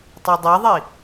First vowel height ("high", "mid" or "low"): low